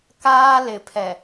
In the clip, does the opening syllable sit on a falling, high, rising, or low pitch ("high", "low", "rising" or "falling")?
high